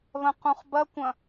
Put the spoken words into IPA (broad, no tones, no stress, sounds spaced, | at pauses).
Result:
β ɐ̃ q ũ χ b ɐ kʷ ɐ̃